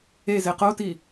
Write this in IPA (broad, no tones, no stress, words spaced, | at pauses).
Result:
eze qoti